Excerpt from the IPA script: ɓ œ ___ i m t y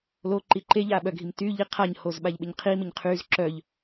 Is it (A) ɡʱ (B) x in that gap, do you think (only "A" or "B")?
A